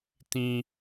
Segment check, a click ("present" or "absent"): absent